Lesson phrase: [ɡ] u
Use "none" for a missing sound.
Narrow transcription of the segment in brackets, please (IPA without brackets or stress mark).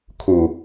kʰ